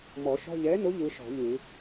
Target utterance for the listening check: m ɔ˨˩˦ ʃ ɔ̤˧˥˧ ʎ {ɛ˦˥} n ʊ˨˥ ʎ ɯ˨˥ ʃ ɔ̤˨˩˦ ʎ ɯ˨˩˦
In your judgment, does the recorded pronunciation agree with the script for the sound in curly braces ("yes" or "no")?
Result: no